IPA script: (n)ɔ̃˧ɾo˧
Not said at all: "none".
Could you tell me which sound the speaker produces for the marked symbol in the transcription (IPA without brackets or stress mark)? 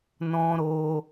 n